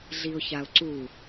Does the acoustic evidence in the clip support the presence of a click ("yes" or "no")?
yes